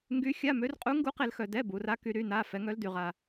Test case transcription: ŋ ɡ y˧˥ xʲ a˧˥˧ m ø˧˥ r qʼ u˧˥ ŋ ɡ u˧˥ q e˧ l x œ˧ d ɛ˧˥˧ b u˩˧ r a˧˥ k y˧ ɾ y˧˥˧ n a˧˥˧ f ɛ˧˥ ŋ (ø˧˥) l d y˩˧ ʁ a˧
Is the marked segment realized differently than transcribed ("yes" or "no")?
yes